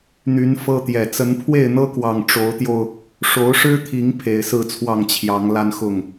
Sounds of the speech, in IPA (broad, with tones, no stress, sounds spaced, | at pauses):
n̪ y˨˦ n f ɤ˦ t̪ j ɛ˨˩ t͡s ə˨˦ n pʰ w e˥˨ ɪ̯ n̪ ɤ˦ k w ɑ˨˩ ŋ ʈ͡ʂ o˨˦ ʊ̯ t̪ j o˧ ʊ̯ | ʂ o˨˦ ʊ̯ ʂ ɻ̩˦ t̪ʰ i˨˦ ŋ pʰ e˨˩ ɪ̯ s ɹ̩˥˨ t͡sʰ w ɑ˥˨ ŋ t͡ɕʰ j ɑ˨˦ ŋ l a˦ n x ʊ˥˨ ŋ